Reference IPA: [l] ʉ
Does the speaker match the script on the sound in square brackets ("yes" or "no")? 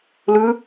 yes